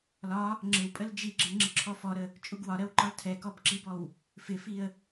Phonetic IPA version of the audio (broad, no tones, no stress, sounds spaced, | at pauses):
l ɒ | ŋ͡ǁ ɪ w pʼ ə l d͡ʒ i ɡ͡ǁ ɪ ŋ͡ǁ ɪ ǁʰ ɔ f ɔ ɾ ə | t͡ʃʼ u ɡ w ɒ ɾ ɜ w ǃ ɒ l tʰ ɛ k ɔ b ǁ i b ɔ w | f ɪ f i ə̯